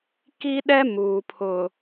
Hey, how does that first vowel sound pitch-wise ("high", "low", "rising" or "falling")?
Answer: high